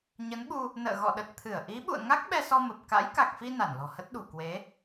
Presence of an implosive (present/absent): present